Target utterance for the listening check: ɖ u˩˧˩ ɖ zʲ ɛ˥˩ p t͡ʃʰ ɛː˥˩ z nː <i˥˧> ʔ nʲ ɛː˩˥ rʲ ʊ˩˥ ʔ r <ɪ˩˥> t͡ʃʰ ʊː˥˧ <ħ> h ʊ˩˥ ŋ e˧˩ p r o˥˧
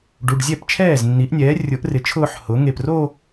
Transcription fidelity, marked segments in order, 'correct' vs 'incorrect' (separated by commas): incorrect, correct, correct